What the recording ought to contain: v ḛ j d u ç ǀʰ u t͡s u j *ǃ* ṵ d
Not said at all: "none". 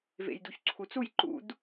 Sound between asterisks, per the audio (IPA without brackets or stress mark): ǃ